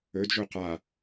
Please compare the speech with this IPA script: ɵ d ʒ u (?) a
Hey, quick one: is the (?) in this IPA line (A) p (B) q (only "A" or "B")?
B